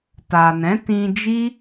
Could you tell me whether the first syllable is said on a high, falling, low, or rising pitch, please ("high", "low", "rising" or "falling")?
low